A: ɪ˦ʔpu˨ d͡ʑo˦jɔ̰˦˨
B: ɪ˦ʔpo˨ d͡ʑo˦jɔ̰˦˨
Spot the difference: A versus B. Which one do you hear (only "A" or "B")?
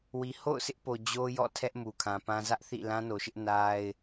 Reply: B